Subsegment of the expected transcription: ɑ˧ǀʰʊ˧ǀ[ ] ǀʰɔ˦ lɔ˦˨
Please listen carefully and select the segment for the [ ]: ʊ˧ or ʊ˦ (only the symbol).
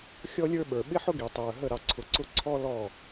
ʊ˦